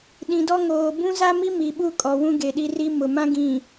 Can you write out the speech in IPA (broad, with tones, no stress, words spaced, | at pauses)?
ɗĩ˨dɔ˦ŋoː˨ bũ˦za˦mi˦ mi˨ɓu˦ kʼɔ˨wũ˦ɡe˨ɗi˦ ri˦ mʊ˨mã˦ɡĩ˨